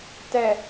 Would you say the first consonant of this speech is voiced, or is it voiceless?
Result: voiceless